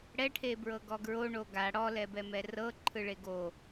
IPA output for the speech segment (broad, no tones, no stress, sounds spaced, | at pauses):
ɽ ɛ ʈʰ e b ɹ ɤ ɡ ɔ ɡ ɹ o ɳ o ɡ a ɽ ɔ l ɛ b ɛ m ɛ r ɤ ǃʰ ɯ ɭ e ɡ o